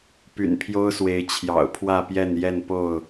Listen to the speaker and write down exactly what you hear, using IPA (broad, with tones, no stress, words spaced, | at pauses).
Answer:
py̰˨˩npʰjo˦ʊ̯swe˨˦ɪ̯ t͡ɕʰjɑ̰˨˩ʊ̯pʰwä˥˨pjɛ˥˨n jɛ˥˨npo˥˨ʊ̯